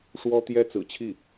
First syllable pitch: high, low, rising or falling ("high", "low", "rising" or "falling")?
high